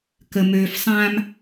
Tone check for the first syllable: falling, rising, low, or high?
low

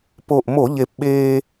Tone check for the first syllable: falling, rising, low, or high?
low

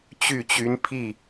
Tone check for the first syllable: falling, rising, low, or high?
falling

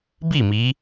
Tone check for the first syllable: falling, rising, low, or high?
falling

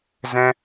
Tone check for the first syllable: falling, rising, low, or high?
high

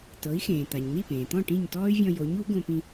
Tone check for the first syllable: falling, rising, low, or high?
rising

